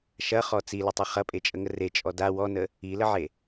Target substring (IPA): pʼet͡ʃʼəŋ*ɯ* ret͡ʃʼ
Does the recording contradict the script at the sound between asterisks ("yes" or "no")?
yes